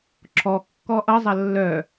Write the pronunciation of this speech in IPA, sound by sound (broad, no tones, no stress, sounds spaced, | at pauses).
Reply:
ǁʰ ɔ kː ɔ ʔ ʌ zˤ ɐ lː œ